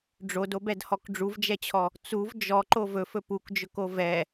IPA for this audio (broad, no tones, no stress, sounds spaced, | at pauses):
ɖ͡ʐ o d o b ɛ d h ɔ k ɖ͡ʐ u v d͡ʒ ɛ t͡ɕʰ ɔ | t͡s u v d͡ʒ ɔ ǃ o v ɵ f ɵ p u k d͡ʒ ɵ k o v ɛ